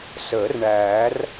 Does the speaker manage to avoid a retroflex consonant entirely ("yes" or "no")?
no